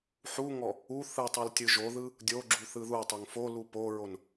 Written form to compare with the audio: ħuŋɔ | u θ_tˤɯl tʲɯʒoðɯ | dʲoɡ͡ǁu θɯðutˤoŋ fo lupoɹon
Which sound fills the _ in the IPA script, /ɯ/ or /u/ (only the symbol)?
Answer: ɯ